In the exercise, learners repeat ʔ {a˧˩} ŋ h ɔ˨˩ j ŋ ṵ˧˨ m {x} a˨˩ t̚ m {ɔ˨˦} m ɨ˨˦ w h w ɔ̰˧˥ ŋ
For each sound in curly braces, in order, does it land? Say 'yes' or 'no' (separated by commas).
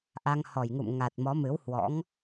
no, no, yes